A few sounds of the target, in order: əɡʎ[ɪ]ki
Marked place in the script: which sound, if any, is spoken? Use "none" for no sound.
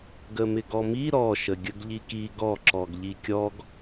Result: i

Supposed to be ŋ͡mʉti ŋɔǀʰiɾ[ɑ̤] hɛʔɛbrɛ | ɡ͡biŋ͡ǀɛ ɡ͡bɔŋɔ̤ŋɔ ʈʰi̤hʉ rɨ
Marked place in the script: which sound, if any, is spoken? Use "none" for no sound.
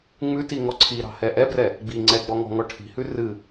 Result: ɑ̤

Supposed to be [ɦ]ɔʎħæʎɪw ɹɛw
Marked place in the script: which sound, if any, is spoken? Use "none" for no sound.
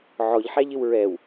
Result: ʕ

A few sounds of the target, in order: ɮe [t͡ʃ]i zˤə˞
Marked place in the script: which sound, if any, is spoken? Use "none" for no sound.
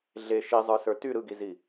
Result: ʃ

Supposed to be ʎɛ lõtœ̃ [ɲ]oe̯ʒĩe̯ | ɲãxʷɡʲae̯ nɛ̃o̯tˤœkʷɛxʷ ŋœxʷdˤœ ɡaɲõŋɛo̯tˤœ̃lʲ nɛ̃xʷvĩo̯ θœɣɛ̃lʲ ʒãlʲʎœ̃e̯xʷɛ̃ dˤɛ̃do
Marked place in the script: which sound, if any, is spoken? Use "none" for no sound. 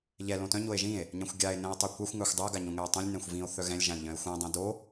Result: ɲ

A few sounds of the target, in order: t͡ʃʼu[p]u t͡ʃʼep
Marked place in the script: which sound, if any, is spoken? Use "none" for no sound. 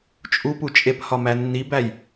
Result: p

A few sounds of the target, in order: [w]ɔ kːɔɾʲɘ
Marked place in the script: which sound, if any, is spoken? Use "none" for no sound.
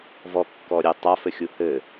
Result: v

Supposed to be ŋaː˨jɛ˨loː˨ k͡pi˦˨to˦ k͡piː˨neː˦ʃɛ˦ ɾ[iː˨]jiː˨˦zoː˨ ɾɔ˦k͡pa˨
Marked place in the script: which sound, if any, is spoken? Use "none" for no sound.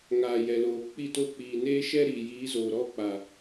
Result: iː˨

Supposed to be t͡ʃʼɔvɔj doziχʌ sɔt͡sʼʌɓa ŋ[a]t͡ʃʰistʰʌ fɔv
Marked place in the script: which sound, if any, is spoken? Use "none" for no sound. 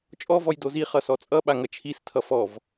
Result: ʌ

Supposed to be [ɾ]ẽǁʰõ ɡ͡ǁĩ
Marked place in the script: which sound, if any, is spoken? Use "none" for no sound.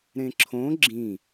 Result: ɾ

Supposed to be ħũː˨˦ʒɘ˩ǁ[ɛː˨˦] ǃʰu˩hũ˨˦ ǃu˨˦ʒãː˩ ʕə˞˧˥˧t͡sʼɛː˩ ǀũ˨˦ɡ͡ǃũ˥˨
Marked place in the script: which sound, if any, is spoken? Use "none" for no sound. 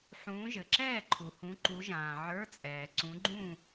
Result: ɛː˥˨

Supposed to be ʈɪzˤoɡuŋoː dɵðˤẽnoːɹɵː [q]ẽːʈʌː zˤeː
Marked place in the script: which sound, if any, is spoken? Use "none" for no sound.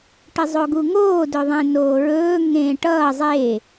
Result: ŋ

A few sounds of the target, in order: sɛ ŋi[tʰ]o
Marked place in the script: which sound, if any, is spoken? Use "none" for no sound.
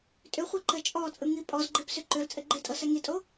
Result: tʼ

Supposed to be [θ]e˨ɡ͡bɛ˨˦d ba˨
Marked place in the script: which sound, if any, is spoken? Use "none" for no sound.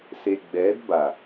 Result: s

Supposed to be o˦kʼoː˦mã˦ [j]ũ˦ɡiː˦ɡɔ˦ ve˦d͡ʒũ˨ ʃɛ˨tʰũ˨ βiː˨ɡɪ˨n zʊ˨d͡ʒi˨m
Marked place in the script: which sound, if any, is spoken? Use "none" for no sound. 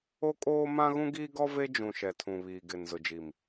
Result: ɣ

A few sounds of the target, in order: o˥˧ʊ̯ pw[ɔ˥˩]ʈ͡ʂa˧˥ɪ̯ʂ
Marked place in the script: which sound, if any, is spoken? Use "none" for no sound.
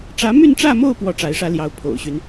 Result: ɔ˥˩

